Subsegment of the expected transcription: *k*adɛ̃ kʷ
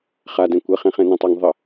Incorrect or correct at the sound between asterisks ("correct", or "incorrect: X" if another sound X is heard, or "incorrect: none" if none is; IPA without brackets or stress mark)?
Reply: incorrect: χ